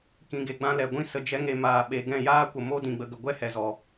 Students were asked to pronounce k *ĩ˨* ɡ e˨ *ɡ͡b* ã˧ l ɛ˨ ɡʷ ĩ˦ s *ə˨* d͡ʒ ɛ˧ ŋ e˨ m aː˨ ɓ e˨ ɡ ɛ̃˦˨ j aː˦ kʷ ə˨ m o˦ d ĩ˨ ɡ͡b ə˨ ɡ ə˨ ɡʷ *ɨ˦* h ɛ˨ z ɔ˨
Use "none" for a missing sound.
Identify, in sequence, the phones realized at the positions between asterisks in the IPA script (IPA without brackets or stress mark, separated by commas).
ĩ˨, ɡ͡b, ə˨, ɛ˦